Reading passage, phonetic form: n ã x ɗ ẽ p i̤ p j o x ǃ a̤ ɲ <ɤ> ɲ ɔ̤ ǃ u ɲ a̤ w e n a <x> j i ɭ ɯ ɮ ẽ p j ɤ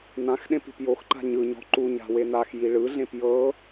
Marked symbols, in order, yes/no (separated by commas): no, yes